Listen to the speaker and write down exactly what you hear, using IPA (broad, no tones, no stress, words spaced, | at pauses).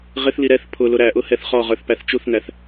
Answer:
ʁɪθli ɾɛθ pʰʊ lʊɾæʔʊ hɛθχɔʁə˞θ pæθt͡ʃuθnæθ